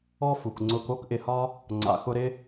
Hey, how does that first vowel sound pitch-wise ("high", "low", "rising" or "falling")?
high